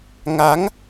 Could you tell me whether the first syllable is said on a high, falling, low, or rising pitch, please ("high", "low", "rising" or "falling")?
rising